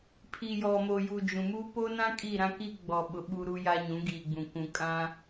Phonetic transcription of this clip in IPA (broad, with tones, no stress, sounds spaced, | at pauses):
pʰ i˨ j ɔ˨ m o˨ j u˨ d͡ʒ ũ˨ m u˦ p o˦ n ã˦ kʼ i˦˨ ɾ ã˦ k i˦ ɡ͡b ɔ˨ ɓ ʊ˨ ɓ u˦ ɾ u˦ j a˦ ɲ ũ˨˦ ɡ iː˨ ɡ͡b ũ˨ k ũ˨ kʼ ã˦